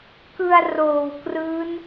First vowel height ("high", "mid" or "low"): high